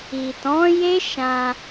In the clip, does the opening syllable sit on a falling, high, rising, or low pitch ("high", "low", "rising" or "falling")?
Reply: low